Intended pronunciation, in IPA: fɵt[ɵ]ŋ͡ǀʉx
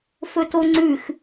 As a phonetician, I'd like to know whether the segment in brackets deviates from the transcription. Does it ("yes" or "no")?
yes